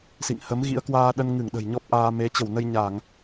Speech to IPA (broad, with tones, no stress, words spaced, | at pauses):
sḭ˧˨ŋ hə˨˦mɣḭ˧˥ə̯kwaː˧ ɗə˧nŋɨ˧˩ŋ ɗə̤˨˩jɲɔ˦˥p̚ʔaː˧ me˨˦t͡ɕə˧˩wnə˧j ɲa˧˩˨ŋ